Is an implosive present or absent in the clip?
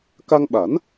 present